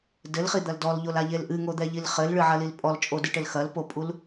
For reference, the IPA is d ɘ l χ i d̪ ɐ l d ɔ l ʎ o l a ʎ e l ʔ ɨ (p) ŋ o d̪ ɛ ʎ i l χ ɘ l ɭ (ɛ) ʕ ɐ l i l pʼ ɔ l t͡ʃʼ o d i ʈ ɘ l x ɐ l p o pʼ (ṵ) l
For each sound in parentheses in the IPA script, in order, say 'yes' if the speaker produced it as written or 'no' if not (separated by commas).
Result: no, no, no